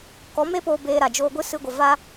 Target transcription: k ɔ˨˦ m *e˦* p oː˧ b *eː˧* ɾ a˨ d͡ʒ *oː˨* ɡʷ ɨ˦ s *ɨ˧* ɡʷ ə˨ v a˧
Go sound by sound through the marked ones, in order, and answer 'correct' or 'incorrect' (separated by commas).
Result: correct, correct, incorrect, correct